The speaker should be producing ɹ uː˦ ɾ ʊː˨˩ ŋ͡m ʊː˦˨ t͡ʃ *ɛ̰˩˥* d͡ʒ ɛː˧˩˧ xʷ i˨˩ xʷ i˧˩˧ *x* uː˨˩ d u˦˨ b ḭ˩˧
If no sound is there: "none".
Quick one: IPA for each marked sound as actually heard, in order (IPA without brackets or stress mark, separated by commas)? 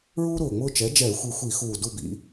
ɛ˩˥, x